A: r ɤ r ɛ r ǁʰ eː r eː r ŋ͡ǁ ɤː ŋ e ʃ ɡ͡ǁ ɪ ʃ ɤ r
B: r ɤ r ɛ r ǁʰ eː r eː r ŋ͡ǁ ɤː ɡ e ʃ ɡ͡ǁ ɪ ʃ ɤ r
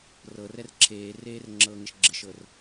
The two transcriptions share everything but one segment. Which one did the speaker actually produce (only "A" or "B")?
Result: A